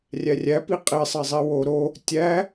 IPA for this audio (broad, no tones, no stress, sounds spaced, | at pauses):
rʲ æ rʲ æ p i qʼ i sˤ e zˤ i w o ɾ o | tʲ æ